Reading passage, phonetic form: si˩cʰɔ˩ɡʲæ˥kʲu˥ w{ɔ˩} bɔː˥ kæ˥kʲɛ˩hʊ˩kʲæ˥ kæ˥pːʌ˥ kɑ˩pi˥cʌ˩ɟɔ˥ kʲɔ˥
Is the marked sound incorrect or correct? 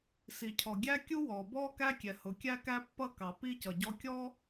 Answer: incorrect